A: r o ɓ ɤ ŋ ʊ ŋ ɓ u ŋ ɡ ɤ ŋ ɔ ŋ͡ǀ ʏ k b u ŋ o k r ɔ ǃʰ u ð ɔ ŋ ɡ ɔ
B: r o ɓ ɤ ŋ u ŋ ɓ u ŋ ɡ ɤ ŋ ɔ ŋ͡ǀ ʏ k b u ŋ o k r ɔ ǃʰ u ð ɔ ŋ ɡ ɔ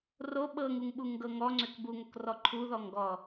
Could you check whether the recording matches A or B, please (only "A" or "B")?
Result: B